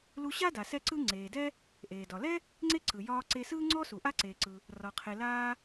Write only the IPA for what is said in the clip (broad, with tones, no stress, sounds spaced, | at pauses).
l u˧ ɕ a˥ d a˩ s ɛ˥ ǀ ɯ˥ ŋ͡ǀ eː˩ d ɛ˥ | ʔ eː˩ d ɒ˩ l ɛ˥ | ŋ͡ǀ e˥ ǀ ɯ˩ j ɒː˧ ǀ e˧ s ɯː˥ ŋ͡ǀ ɔ˥ s u˩ ʔ a˥ ǀ eː˩ ǀ ɯ˩ | r ɒ˩ qʰ e˩ l aː˧